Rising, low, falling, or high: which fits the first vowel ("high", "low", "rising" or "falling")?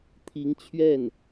rising